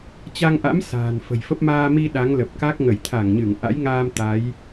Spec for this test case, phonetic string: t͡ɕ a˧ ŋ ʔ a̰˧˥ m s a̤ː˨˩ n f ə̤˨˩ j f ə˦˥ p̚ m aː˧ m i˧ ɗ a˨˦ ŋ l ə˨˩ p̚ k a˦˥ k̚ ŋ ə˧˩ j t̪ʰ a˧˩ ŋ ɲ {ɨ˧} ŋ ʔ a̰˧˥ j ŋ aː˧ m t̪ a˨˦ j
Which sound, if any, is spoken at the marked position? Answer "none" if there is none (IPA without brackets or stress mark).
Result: ɨ˧˩